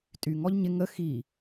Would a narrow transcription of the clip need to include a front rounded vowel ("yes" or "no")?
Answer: yes